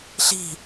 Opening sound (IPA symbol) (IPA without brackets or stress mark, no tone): ɬ